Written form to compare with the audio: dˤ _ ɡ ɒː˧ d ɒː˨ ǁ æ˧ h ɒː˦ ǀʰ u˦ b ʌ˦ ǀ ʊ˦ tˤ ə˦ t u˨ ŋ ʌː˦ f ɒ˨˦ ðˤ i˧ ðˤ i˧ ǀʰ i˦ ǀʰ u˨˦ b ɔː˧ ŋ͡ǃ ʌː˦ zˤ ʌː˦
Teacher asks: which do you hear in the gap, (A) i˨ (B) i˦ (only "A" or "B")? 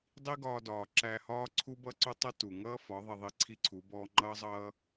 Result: B